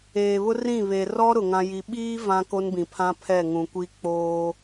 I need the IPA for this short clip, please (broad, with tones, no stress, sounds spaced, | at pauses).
eː˨ β ʊ˦ r ĩ˦˨ β e˨ r ɔ˦ ɾ ʊ˨ ŋ ã˦ j i˦ ɓ iː˦ v ã˦ k o˦ n b ĩ˨ pʰ ã˦ pʰ ɛ˦˨ ŋ ũ˨ kʷ i˦ k͡p oː˦